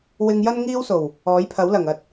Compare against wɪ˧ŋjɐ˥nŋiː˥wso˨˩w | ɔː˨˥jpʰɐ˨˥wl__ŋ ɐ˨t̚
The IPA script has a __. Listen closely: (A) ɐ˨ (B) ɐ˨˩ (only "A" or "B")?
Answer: B